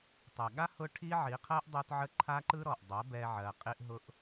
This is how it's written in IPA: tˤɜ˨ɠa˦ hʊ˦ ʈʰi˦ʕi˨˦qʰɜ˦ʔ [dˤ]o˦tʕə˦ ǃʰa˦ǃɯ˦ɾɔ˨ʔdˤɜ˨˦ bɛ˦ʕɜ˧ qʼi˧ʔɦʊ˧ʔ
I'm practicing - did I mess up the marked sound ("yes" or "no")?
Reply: no